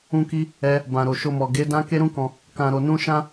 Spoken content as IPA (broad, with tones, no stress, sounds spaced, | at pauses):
ũ˦ k i˦ | ɛ˦ | b ã˨ ɾ o˨ ʃ o˧ m ɔ˨ ɡ e˨˦ d ã˦ k e˦ ɾ ũ˦ k ɔ̃˧ | k ã˧ ɾ o˧ n ũ˦ ʃ ã˦